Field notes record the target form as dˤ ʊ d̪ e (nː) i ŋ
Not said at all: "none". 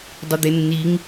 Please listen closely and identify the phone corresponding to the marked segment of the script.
nː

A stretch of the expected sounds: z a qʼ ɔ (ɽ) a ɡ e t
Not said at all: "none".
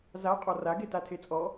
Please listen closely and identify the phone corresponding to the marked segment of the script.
r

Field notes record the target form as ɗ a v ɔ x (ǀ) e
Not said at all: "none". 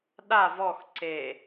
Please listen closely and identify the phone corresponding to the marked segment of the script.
ǀ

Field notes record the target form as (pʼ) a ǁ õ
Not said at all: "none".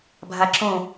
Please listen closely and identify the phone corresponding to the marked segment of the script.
bʱ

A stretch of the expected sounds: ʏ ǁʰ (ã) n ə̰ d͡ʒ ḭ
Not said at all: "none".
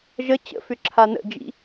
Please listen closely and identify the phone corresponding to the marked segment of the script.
a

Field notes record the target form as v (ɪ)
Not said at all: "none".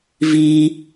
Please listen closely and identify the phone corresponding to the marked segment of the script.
i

